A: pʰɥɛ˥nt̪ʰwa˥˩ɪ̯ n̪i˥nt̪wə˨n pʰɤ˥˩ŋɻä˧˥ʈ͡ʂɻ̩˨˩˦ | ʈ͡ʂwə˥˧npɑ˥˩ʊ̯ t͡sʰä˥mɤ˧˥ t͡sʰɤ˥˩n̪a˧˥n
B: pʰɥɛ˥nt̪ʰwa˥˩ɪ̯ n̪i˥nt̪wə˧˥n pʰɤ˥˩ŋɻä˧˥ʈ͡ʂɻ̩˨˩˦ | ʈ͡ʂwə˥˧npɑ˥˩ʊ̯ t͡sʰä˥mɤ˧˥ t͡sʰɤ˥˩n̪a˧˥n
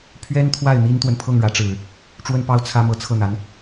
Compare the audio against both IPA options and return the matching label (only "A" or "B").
A